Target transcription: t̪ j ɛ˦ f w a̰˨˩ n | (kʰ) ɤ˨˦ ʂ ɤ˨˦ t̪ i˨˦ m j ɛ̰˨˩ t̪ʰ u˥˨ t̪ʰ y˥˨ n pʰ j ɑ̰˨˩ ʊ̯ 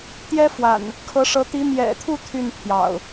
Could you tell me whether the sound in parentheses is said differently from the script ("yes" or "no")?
no